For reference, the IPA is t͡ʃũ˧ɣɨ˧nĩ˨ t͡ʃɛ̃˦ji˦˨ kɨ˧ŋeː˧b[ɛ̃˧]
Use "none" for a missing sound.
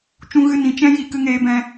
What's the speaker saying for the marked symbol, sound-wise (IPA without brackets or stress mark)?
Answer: ɛ̃˧